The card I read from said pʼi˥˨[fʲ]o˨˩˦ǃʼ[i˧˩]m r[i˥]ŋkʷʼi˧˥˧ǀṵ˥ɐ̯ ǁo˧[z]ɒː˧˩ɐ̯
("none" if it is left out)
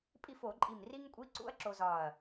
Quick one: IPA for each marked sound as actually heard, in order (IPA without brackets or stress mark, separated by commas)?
f, i˧˩, i˥, z